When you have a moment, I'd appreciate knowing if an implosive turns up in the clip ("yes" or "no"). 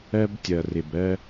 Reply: no